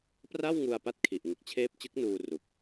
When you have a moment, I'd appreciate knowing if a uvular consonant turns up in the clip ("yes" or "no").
no